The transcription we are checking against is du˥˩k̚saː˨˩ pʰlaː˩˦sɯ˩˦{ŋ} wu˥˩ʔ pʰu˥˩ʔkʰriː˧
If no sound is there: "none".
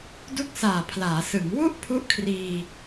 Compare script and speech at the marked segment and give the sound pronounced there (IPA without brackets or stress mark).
ŋ